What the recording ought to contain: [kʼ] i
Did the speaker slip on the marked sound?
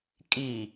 no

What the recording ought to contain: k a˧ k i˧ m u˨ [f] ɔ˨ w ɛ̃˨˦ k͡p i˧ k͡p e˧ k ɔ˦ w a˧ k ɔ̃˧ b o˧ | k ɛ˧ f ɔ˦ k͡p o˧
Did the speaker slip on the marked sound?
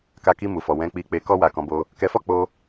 no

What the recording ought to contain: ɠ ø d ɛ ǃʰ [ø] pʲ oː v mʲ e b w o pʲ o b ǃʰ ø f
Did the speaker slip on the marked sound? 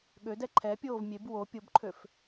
yes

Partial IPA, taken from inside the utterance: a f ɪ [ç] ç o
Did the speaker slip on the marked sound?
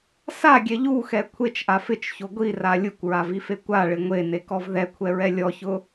yes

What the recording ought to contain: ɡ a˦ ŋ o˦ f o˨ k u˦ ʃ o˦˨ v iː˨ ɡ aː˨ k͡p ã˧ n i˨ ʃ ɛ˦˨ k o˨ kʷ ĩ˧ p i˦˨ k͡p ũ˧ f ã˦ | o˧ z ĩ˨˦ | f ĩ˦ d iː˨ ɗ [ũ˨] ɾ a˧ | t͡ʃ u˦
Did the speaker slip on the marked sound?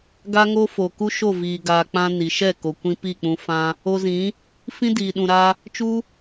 no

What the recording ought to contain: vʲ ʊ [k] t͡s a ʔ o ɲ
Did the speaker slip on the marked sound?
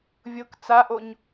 no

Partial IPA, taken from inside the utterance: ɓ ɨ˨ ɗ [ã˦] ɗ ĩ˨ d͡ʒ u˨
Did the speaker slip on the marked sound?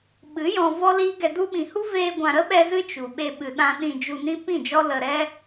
yes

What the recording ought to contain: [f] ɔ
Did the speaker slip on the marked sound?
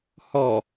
yes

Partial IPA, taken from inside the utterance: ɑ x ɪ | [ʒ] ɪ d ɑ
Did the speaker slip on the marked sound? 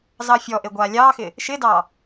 yes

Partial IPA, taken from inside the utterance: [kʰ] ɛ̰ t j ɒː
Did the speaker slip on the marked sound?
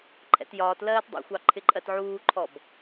yes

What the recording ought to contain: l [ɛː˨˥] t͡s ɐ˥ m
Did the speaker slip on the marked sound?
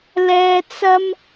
yes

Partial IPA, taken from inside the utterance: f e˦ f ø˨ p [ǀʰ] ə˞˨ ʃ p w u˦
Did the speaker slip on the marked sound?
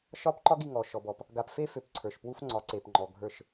no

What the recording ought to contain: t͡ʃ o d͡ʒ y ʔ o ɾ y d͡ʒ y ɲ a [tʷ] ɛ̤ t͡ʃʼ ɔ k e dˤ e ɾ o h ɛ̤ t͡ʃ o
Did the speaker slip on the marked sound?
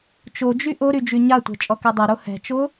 no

